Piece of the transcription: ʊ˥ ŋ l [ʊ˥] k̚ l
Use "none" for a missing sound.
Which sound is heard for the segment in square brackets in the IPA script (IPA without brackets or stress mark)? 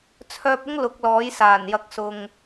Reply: ʊ˨˥